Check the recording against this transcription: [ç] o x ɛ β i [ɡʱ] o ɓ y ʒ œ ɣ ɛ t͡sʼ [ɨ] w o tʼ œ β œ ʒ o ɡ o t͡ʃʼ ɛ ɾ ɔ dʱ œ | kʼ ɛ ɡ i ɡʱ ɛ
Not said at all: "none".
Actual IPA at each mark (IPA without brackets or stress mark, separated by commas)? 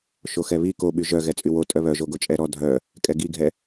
ʃ, k, y